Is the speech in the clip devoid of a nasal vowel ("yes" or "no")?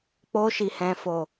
no